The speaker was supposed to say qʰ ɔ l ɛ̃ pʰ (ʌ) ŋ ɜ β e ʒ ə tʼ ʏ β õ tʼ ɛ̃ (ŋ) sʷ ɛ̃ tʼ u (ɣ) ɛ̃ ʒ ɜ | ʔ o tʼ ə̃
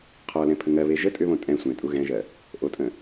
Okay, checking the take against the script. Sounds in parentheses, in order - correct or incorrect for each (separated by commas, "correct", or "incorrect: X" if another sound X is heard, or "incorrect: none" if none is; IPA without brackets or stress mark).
incorrect: ə, incorrect: none, correct